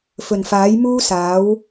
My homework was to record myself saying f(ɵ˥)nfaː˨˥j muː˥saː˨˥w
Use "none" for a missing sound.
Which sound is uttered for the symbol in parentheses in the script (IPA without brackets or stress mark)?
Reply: ɵ˨˩